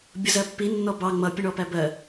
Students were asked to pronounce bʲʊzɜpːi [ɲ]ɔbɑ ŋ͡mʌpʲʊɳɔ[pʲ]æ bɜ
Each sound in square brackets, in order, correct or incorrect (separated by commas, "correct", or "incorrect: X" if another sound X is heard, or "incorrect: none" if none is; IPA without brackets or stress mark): incorrect: nː, incorrect: p